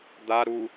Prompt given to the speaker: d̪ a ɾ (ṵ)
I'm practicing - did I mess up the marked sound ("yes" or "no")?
yes